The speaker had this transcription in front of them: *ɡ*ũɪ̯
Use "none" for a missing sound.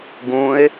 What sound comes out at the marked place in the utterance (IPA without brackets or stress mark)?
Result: ɡ